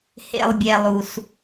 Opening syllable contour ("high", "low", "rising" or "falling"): low